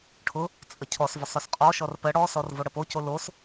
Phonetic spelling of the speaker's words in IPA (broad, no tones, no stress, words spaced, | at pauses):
ʈʰʊ | t͡sʼəcʰɔsvʊsˤ ɵsqʼɔʃɔr pə ɽɔsɔr voɽəpoco los